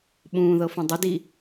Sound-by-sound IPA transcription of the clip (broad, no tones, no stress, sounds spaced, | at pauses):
ɓ ũː ð ɤ f ũ dˤ ʏ d i